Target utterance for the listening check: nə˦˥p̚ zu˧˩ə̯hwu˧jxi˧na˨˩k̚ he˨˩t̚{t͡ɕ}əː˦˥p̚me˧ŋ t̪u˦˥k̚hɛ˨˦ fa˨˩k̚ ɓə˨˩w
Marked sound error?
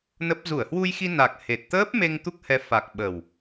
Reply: yes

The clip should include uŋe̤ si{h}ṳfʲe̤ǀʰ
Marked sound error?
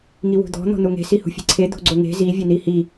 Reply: no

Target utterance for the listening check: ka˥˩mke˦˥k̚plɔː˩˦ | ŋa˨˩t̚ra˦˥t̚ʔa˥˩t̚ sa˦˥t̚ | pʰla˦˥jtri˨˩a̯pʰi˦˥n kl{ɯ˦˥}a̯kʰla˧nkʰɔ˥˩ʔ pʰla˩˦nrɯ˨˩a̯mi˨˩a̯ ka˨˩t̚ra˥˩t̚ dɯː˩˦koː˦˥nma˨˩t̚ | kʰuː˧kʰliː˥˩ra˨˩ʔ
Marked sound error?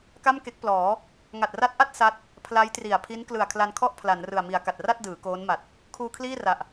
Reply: yes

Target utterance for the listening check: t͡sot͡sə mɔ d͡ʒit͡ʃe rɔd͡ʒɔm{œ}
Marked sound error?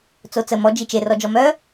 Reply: no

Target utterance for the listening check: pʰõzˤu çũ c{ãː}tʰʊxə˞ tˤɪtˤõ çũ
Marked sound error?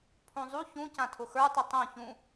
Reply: yes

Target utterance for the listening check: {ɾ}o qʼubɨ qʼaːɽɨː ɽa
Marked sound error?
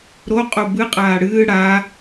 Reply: no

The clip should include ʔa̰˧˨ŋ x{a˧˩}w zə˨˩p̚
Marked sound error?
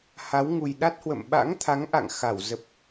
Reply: no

